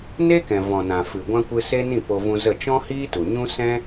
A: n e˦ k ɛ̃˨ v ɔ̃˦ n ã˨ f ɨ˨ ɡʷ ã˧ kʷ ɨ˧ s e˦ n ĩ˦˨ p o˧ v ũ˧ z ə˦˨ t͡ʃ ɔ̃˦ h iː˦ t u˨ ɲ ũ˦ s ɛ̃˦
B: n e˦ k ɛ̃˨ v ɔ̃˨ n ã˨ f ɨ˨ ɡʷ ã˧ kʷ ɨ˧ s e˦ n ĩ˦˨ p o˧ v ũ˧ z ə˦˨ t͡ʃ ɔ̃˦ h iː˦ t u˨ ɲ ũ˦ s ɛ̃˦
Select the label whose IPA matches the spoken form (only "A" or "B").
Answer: B